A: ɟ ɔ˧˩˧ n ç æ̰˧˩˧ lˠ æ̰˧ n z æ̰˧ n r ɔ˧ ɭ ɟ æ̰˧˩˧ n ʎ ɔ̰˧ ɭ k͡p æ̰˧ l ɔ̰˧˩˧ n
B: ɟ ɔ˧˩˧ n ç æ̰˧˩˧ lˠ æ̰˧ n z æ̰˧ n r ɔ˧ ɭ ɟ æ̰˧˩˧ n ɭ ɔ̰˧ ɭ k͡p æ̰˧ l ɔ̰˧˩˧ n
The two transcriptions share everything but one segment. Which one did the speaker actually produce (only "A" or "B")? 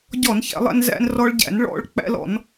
B